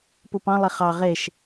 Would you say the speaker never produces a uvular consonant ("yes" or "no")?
no